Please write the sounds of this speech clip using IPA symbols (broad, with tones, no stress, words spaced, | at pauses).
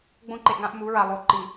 ɡ͡bõ˦ǃe˨ʔŋã˦ʔ mu˨˦ɹa˨ lˠo˨ǃi˨